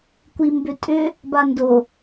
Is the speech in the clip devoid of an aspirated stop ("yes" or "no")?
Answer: yes